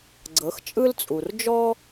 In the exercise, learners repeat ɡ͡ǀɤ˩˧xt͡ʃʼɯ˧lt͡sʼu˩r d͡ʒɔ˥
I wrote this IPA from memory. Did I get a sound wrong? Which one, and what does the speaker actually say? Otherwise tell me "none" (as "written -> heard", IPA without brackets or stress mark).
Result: none